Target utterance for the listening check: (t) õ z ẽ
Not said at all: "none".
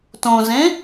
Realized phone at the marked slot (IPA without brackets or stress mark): t